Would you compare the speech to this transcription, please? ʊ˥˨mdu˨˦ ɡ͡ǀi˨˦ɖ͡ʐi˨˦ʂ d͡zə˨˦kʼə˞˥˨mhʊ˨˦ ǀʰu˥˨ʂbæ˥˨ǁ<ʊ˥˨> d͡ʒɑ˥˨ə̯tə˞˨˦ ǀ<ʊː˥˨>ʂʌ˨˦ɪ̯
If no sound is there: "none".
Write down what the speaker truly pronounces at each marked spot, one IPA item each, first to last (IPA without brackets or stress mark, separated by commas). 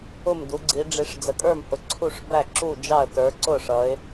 u˥˨, ʊ˥˨